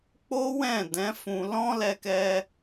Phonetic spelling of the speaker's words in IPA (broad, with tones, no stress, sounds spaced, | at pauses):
k͡p o˦ w ɛ̃˦˨ d ɛ̃˨˦ f ũ˧ l ɔ̃˦ l ɛ˧ k ɛ˧